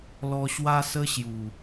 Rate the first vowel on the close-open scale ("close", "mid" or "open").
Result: mid